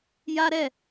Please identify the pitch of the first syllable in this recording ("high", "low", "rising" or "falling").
high